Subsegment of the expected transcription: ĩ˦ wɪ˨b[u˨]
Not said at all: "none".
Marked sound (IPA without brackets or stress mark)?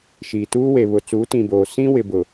ʊ˨